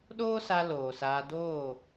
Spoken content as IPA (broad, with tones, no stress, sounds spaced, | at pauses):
ɗ oː˦ s a˧ l oː˨ s aː˧ d oː˦˨